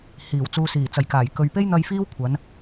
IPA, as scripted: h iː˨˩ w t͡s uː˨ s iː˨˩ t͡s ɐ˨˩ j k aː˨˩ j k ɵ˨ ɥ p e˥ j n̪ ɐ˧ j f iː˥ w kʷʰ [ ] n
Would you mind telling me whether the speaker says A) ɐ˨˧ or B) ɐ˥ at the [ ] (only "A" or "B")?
A